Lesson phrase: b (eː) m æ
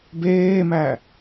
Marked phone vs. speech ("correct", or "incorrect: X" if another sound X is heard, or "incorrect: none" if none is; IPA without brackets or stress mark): correct